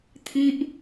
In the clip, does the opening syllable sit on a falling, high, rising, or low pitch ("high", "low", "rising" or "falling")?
high